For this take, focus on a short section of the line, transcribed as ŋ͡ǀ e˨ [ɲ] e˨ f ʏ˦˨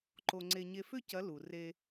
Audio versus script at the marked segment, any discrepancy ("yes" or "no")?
no